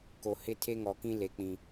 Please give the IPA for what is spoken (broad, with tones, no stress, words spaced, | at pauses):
ko˨hɪ˦ tʰe˦ŋɔ˨kĩ˦ le˨k͡pĩ˨